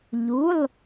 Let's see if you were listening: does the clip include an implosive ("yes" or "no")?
no